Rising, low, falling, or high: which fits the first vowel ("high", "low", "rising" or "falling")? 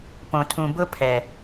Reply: low